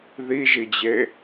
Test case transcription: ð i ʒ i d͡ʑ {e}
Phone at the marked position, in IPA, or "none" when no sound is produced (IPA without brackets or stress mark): e